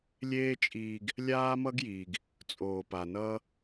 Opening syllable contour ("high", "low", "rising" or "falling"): high